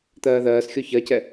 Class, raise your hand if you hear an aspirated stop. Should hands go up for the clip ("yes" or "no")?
no